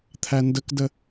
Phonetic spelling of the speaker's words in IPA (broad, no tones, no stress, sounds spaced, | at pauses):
t̪ʰ æ n d ə k d ə